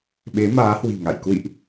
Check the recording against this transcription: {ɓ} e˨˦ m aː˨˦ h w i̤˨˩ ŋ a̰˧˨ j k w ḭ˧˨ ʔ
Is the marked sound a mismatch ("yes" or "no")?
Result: no